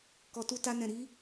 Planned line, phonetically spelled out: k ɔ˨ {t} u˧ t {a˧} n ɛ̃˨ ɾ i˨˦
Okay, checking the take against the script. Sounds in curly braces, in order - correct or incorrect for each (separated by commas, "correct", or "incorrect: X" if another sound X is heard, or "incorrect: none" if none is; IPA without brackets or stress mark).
correct, correct